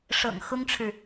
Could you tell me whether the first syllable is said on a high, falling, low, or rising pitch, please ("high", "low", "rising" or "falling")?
low